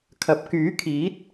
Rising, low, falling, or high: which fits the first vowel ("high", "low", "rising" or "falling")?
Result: rising